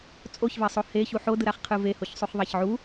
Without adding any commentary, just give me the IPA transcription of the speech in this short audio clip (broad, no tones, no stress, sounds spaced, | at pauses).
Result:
t͡sʼ o ç v ɛ sˤ o h e ç u ħ o d ɯ ɾ a χ qʰ ɯ v e h o ç sˤ u χ ðˤ a ç ʕ u